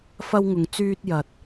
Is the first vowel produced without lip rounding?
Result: yes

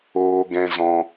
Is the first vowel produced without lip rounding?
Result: no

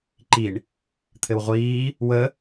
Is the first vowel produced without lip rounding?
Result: yes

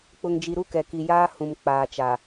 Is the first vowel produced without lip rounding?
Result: no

